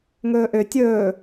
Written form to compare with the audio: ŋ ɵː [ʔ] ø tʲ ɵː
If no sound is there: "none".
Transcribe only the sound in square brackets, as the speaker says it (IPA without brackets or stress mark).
ʔ